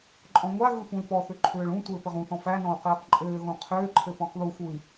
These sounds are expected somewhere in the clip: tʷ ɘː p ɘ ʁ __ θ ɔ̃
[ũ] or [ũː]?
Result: ũ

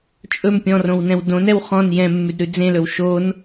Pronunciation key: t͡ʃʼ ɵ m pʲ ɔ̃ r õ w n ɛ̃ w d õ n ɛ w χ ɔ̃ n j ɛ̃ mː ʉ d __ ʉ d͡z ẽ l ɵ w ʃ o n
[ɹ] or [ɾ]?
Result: ɾ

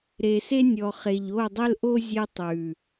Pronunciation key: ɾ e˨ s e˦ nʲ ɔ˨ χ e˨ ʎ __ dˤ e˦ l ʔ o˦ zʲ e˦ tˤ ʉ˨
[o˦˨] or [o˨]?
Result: o˦˨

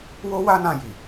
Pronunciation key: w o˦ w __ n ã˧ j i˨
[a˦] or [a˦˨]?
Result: a˦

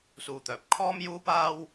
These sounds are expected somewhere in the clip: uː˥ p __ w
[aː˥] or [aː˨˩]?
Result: aː˥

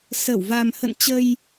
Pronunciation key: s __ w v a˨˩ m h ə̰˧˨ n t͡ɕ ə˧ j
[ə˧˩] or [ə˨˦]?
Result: ə˧˩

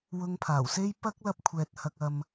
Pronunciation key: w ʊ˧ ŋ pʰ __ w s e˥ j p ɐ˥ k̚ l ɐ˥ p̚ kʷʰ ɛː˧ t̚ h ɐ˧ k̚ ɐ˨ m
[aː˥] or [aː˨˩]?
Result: aː˨˩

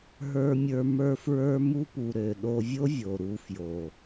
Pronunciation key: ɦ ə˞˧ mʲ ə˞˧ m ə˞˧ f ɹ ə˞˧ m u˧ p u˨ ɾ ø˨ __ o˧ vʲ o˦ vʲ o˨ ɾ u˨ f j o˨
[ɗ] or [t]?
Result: ɗ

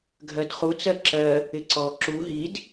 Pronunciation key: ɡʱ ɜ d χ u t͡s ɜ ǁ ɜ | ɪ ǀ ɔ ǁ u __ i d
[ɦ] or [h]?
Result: ɦ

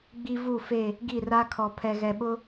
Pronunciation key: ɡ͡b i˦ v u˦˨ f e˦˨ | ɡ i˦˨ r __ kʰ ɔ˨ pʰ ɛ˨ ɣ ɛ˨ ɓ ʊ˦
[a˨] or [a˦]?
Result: a˦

